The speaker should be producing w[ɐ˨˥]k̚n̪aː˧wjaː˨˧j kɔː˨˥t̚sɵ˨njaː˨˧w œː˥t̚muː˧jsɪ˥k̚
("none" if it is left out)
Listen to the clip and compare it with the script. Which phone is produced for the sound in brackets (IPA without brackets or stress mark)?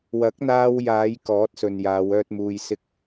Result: ɐ˨˥